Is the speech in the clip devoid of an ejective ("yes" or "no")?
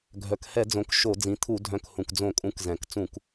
no